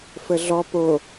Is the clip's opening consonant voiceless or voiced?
voiceless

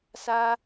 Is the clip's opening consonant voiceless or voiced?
voiceless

